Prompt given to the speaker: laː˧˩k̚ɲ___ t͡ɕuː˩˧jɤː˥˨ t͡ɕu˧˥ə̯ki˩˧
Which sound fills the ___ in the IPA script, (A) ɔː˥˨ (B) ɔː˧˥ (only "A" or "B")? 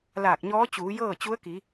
B